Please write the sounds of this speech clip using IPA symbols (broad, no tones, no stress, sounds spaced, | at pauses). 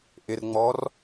ʔ ɪ r ŋ͡m ɔ r